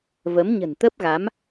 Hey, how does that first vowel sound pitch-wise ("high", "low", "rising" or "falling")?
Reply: rising